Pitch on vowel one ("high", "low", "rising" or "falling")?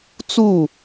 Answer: falling